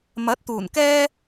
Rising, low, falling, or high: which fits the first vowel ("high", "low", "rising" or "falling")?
rising